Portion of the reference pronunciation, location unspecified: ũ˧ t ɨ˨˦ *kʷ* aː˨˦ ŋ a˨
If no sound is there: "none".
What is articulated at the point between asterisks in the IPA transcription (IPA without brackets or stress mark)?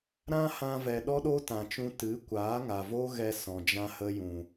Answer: kʷ